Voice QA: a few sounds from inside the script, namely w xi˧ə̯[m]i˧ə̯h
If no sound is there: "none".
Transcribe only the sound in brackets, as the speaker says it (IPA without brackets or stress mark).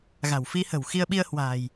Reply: ɓ